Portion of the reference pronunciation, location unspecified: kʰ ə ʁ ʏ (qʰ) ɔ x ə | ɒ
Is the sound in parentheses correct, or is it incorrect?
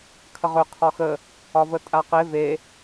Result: correct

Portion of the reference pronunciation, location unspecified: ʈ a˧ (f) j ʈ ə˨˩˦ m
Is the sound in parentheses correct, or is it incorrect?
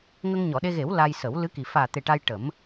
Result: incorrect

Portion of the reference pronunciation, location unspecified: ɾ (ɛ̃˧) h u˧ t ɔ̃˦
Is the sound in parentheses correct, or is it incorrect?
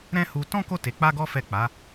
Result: incorrect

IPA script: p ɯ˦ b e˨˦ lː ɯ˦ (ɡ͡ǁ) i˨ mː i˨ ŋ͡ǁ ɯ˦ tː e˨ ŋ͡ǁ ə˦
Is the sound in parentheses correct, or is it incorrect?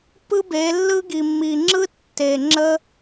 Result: incorrect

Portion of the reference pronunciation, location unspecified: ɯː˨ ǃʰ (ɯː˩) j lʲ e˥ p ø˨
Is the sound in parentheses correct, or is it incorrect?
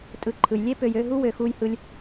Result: incorrect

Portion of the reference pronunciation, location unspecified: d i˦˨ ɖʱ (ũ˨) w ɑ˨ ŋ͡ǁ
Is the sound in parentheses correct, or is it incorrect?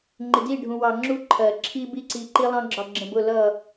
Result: correct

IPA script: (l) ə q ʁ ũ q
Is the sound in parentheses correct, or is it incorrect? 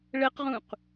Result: incorrect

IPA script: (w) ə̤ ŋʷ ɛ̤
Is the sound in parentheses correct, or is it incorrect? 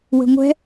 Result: correct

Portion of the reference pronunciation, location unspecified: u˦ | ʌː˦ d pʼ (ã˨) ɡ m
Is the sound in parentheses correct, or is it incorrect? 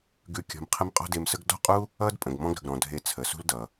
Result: incorrect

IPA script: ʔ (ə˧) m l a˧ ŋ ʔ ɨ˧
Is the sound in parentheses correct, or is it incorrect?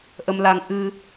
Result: correct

